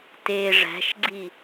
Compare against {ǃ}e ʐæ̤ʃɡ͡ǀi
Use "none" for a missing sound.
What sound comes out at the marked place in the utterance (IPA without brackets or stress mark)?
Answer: t